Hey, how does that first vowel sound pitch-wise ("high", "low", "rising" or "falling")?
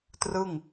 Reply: falling